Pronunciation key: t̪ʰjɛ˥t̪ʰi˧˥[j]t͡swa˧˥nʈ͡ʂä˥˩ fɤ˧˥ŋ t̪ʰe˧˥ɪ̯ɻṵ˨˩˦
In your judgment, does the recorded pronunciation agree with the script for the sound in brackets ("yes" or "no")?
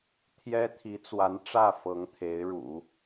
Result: no